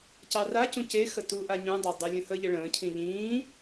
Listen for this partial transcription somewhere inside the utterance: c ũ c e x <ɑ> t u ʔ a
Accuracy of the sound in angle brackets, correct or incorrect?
incorrect